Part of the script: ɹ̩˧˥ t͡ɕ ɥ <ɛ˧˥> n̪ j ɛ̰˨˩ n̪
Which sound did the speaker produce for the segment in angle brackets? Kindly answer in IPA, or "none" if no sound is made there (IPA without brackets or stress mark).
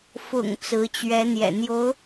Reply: ɛ˧˥